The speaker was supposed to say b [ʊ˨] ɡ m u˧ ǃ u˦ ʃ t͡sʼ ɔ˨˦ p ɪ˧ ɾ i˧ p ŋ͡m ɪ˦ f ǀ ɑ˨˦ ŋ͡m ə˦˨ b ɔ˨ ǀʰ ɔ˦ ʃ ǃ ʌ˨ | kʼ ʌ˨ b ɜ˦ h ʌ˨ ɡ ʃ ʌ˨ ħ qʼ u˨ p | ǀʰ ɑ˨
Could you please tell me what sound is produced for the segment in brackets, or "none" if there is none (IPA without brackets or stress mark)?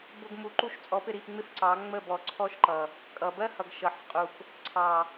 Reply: ʊ˦